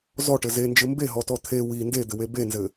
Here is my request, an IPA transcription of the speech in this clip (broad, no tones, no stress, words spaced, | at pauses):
zɔʈɘ zend͡ʒɘ mbeɦɔtɔ t̪ʰe wi nded̪ɘwe benzɘ